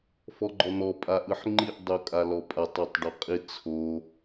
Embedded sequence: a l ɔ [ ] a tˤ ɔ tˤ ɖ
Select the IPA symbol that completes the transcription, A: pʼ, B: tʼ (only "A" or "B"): A